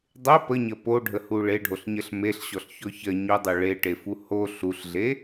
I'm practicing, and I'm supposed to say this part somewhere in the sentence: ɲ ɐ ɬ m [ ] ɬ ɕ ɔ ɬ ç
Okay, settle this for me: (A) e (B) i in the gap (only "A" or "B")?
A